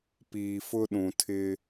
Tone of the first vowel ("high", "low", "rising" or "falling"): low